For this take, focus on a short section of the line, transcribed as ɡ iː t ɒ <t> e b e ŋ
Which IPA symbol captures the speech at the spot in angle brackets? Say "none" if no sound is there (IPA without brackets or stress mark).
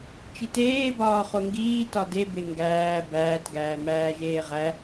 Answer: d